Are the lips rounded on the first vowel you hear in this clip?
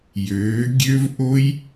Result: yes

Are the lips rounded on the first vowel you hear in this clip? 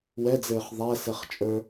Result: no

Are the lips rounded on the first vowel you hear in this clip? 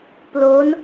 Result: yes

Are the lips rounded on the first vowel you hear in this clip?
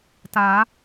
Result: no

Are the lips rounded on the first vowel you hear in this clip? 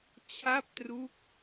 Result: no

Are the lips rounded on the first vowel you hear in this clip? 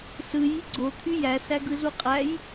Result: no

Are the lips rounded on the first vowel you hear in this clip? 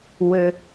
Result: no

